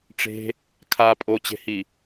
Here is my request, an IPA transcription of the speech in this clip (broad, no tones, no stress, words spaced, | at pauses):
ʈ͡ʂe̤ | kʰa pʼot͡ɕe̤hi